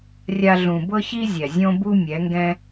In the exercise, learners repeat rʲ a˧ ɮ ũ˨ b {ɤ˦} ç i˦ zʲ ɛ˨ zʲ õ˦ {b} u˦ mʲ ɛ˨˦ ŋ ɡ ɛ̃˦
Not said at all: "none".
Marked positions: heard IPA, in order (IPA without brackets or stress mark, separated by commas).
ɤ˦, b